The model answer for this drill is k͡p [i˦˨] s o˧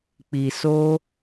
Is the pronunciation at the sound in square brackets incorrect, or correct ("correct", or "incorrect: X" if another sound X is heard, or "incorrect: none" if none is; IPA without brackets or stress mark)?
incorrect: i˨